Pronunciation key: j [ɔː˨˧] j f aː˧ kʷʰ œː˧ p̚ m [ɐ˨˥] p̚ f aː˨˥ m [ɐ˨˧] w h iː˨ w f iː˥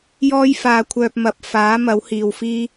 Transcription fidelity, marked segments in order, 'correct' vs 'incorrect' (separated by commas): incorrect, correct, incorrect